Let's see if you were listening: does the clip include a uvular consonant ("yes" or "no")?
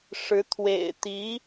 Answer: no